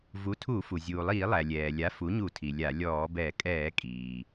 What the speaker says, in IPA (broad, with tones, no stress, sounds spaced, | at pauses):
v u˩˥ tʰ u˧˩˧ f u˩ zʲ uː˩ lˠ iː˧˩˧ lˠ æ˩ lʲ ɛː˩ lʲ a˩˥ f u˩˥ ɲ u˧˩˧ tʰ i˩ lʲ a˧˩˧ lʲ ɔː˧˩˧ b ɛ˧˩˧ kʼ ɛː˧˩˧ kʼ iː˩